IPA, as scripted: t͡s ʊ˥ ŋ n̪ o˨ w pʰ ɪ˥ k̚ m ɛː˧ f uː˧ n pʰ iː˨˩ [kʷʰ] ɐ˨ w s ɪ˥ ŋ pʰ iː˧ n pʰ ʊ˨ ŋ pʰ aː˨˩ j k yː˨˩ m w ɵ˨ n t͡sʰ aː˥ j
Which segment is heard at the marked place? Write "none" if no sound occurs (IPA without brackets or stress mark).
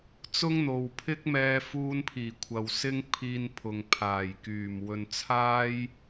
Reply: kʷʰ